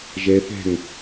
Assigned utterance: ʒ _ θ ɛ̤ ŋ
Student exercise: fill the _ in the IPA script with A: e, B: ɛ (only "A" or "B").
B